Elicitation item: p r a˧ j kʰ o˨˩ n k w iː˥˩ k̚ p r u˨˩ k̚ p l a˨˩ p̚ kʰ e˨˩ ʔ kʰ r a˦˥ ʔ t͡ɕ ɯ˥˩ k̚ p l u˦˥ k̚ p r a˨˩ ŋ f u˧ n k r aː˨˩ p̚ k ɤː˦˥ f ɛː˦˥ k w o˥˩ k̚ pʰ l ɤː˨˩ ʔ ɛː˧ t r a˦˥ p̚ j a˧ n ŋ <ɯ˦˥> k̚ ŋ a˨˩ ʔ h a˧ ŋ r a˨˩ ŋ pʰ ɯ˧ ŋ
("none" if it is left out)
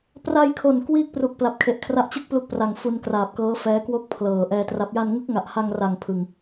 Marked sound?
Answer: ɯ˦˥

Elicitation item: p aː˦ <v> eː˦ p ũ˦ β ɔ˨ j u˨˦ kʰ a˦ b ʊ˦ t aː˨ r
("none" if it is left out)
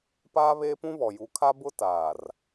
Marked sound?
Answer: β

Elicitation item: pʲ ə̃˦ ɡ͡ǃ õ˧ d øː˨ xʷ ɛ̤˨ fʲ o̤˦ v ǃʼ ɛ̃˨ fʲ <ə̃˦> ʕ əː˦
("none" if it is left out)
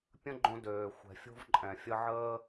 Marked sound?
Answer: ə˦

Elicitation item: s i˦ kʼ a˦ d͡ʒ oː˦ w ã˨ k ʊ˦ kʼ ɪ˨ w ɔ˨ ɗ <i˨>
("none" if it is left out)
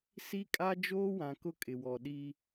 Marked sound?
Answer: i˦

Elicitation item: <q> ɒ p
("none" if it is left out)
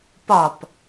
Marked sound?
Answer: p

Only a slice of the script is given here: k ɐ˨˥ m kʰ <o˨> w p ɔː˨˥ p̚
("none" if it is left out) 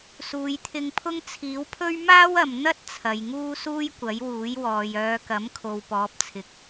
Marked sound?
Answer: o˨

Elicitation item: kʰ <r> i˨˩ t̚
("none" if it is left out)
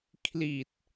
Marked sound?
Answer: l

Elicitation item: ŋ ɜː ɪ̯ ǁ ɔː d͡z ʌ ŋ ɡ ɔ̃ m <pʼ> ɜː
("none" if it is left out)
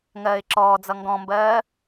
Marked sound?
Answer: b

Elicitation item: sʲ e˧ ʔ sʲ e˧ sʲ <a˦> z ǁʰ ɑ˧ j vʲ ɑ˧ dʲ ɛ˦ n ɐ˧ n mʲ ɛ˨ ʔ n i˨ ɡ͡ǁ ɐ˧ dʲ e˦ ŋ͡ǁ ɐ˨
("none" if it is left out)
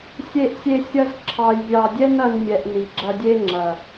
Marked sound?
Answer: ɐ˦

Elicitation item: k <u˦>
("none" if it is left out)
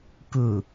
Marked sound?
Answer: u˨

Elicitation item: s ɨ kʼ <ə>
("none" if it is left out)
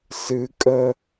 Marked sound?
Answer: ə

